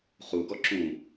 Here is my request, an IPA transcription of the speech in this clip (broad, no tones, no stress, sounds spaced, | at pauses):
χ u ɡ ɔ ǁ ũ